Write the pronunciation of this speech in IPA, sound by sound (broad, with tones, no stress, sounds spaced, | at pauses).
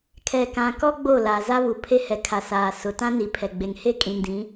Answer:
kʰ ɛ˨ k ã˨ k ɔ˦ ɡ͡b o˦˨ l aː˨ z a˦ β u˨ pʰ e˦ h ɛ˨ kʰ a˨ s aː˨ s ʊ˨ t ã˦ n i˨ pʰ ɛ˨ ɡ͡b e˨ ŋ h e˦ kʼ ĩ˨ n d ĩ˨˦